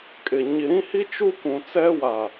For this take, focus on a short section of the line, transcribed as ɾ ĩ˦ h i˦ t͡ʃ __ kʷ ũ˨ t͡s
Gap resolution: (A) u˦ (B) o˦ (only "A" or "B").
A